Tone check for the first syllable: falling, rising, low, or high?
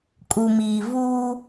low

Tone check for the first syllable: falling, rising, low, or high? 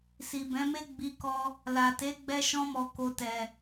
low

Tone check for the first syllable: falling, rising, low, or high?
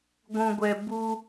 low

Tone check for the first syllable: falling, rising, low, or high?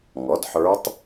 rising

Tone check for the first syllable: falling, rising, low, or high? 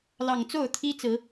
low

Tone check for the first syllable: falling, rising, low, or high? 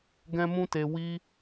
high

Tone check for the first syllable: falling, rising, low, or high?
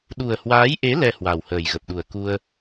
low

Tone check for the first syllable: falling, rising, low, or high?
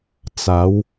rising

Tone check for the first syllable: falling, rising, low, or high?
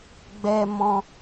high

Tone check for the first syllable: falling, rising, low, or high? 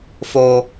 high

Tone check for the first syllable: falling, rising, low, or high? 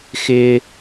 high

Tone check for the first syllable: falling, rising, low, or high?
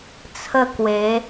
falling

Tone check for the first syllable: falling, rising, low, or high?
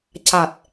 low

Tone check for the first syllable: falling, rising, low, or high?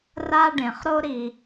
high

